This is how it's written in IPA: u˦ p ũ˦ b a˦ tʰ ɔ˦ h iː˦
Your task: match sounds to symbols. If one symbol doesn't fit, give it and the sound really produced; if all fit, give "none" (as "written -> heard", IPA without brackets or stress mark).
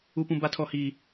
none